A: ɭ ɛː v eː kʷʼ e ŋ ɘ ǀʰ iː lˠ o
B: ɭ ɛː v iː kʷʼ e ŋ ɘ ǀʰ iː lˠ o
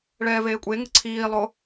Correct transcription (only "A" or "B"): A